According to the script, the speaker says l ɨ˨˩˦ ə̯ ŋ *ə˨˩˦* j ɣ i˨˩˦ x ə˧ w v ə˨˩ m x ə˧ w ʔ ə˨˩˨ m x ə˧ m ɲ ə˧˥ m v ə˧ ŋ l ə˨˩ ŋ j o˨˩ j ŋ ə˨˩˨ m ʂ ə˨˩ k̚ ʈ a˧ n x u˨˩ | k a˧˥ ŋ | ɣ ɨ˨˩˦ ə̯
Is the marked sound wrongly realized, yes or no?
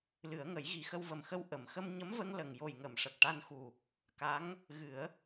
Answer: no